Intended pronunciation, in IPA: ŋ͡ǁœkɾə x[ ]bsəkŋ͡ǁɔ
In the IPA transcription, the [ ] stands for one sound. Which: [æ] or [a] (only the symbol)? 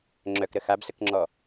a